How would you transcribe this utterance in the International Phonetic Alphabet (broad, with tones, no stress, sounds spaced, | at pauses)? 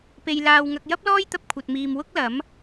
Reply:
p e˧ j l aː˧ w ŋ ɐ˧ k̚ j ɐ˥ p̚ l ɔː˥ j t̪ ɐ˧ p̚ kʷʰ ɐ˧ t̚ m iː˧ m w ʊ˥ k̚ l ɐ˨˥ m